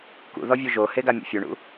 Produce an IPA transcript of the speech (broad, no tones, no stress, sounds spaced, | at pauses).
k ṵ ð ɔ vʲ u ʒ o h e ɡ a mʲ o̰ fʲ u ɳ ṵ